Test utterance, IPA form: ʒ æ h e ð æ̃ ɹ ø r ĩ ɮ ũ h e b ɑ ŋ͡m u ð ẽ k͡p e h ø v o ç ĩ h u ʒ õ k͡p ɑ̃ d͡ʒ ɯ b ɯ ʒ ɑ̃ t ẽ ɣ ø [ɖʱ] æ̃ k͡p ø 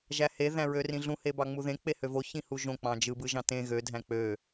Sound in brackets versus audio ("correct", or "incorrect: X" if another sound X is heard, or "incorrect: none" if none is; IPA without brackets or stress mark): incorrect: dʱ